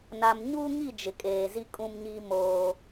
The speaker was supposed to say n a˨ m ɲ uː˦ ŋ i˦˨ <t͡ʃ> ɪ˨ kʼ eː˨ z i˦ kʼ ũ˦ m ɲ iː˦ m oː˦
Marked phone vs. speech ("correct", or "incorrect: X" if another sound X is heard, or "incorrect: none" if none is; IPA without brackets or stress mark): incorrect: d͡ʒ